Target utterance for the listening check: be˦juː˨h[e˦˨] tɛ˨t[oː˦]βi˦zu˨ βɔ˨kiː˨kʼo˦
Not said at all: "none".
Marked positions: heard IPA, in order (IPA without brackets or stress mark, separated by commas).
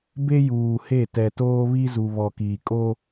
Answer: e˦˨, oː˦